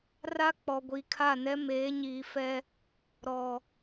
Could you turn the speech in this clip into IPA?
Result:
r a˦ k͡p ɔ˨ ɡʷ i˨ kʰ a˦˨ n ɛ˦ m eː˨˦ ɲ iː˨ f ɛ˦ | ɾ ɔ˨

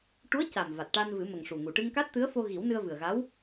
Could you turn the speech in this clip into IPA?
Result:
ʈ u˧˥ ə̯ c a˨˩ m v a˨˩ t̚ ʈ a˧ n v ɨ˨˩˦ m ə˨˩ ŋ ʂ u˨˩ ŋ u˨˩ ʈ ɨ˧ ŋ k a˦˥ t̚ t̪ ɨ˧˥ ə̯ f o˧ ɣ i˨˩˦ w n ɨ˧ ə̯ v ɨ˨˩ ə̯ ɣ a˧˥ w

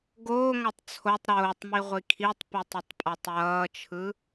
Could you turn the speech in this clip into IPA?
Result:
ɡ oː ŋ a tˤ t͡sʰ o tˤ ɾ oː tˤ m i ʁʷ i kʰ i tˤ p i tˤ ʌ tˤ pʼ a tˤ j ʌː t͡ʃʰ ɯ

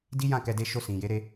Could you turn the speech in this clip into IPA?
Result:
d i˦ j ã˦˨ k ɛ˧ d e˧ ʃ o˧ s ĩ˨ j e˨˦ ɾ e˧

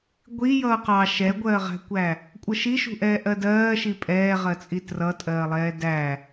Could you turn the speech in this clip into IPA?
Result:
ɡʷ i j ʌː q ɑ ʃ ɛ ɡʷ ɜː ʁ æ̤ kʷ æ | kʷʼ ə ʃ i ʃ ṳ ʔ ɛː ʔ ɜ d ɜː ʃ i pʼ ɛː ʁ ɜ t͡sʼ i t r ʌ tʼ ɜː lˠ ɛː d æ

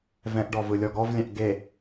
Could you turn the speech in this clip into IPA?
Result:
v ɛ̃ ʔ ɖ ɔ v ɯ lʲ ɔ ɡ ɔ v lʲ ɛ̃ ʔ ɡ e

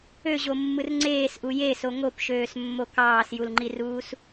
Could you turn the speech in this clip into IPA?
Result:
ø ʑ o mː ɯ r ŋ͡ǀ eː s ʔ u j e s o ŋ o p ʃ øː s mː o k ɑː s j u l ŋ͡ǃ i r uː s

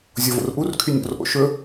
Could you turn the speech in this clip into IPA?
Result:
zʲ o v o̰ r ʔ u r kʰ y nʲ o̰ r ʔ o̰ ʃ ɵ

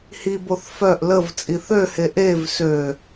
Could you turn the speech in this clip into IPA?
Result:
h i b o θ f œ ʔ l ə v t͡sʼ i θ ø h e ʔ e v s ø

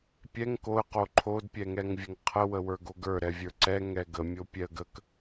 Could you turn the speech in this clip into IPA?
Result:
pʲ ɛ ŋ k o ə̯ q o ǃʰ o d pʲ ɛ ŋ ɛ ŋ vʲ ə ŋ qʰ ə w ə w ə˞ ɡ o ɡ ə˞ ɾ ɛ vʲ ə˞ ǀ ɛ ŋ ɛ ɡ ə mʲ o pʲ ɛ ə̯ ɡ ə k

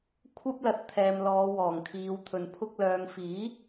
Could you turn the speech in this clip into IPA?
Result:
kʷʰ ɐ˥ p̚ l ɐ˨ t̚ t̪ʰ ɛː˨ m l ɔː˨˧ w ɔː˨˩ ŋ kʰ iː˨˧ w t̪ʰ ɵ˨ n pʰ ʊ˧ k̚ l œː˨ ŋ f iː˨˥

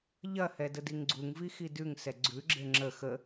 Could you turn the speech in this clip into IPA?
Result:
ʎ ɐ h ɛ d ə d i ŋ ɡ͡ǀ u ŋ v i x i d ʉ ŋ s ɛ ɡ͡ǀ ʉ ɡ͡ǁ e ŋ͡ǁ ə x ə

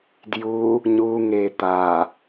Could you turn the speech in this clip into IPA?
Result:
d j u | ɲ u ŋ e t̪ a

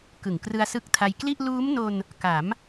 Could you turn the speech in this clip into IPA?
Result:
k ɯ˨˩ ŋ k r ɯ˧ a̯ s ɯ˦˥ k̚ tʰ a˧ j k l i˥˩ ʔ l uː˦˥ m n o˧ n | k a˩˦ m

